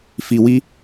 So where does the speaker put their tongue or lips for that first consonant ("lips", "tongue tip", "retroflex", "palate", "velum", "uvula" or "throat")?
lips